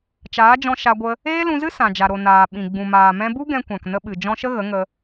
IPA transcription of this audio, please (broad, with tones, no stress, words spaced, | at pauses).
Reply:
t͡ʃaː˨˦d͡ʒɔ̃˧ ʃa˧ɡʷə˧ | eː˦lũ˧zɨ˦ sã˨d͡ʒa˨ ɾo˨ naː˨ɓĩ˨ ɡ͡bũ˨maː˨mɛ̃˧bu˦ ɡɛ̃˧kʷã˨k nə˧ɓɨ˨ d͡ʒɔ̃˧ʃə˦ ɣə˨˦ŋə˧